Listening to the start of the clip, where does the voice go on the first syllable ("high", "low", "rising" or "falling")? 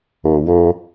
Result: low